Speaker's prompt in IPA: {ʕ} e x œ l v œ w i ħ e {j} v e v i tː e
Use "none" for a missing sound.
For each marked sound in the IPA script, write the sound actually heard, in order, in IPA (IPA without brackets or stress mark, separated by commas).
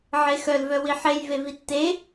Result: ʕ, j